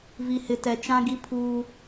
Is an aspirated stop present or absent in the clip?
present